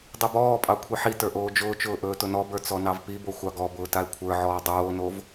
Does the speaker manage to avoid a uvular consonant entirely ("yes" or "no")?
yes